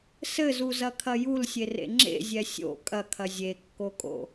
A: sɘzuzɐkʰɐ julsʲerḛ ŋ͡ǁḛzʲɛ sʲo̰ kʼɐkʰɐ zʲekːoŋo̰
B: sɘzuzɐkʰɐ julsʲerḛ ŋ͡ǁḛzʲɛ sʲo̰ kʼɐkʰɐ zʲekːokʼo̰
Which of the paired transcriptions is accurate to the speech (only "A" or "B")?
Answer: B